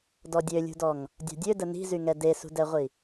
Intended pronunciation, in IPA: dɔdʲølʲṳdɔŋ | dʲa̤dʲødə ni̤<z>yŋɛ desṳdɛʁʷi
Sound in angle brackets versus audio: correct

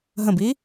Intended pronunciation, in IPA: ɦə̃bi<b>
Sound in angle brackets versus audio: incorrect: none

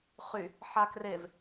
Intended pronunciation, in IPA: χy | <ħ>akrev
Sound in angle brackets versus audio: correct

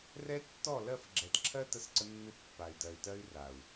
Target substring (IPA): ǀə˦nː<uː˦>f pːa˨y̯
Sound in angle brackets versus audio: incorrect: u˦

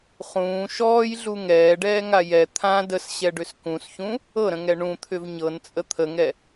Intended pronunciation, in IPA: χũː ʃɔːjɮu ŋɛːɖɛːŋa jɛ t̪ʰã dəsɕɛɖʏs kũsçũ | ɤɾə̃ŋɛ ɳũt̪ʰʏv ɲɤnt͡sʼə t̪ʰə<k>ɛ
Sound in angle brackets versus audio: incorrect: ŋ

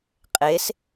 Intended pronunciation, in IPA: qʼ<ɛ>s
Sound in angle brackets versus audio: incorrect: e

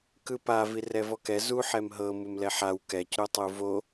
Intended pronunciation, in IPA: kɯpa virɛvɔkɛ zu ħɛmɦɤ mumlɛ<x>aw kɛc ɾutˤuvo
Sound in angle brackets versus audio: incorrect: ħ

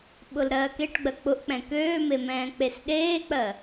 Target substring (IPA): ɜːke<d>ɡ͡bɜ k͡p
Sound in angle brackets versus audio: incorrect: ʈ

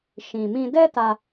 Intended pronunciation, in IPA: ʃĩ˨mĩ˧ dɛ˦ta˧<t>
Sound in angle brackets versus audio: incorrect: none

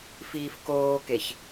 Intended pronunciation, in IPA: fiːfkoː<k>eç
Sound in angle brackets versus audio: correct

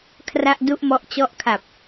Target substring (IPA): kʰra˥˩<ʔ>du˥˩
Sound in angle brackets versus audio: correct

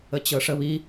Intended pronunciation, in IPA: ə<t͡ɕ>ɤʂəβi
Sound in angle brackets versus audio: correct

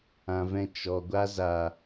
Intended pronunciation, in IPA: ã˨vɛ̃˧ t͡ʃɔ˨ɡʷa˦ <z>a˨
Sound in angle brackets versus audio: correct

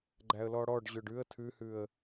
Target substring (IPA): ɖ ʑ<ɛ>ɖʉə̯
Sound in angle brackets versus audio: incorrect: ø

